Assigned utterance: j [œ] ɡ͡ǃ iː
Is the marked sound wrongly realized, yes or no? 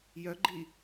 no